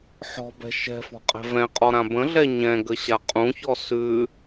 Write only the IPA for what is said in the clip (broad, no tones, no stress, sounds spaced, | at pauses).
ħ ɔ̤ b ɛ̤ ʃ ɛ̤ f ɔ̤ qʼ ɛ̤ v ɛ̃ qʼ ɔ ɾ ã b ə̃ ɮ ɛ ɲ ɛ̃ ɡ ə ɕ a qʼ ũ ç ɔ s ʉ